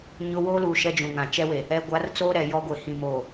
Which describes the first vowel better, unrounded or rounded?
rounded